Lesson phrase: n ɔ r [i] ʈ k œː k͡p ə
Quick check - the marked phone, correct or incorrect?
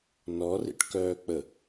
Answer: incorrect